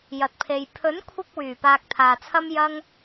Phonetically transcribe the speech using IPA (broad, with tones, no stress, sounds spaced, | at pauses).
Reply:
j ɐ˨ t̚ pʰ e˨ j pʰ ɵ˨˥ n kʷʰ ɪ˧ k̚ w yː˨˩ p aː˧ k̚ t̪ʰ aː˨ t͡sʰ ɐ˥ m j ɐ˥ ŋ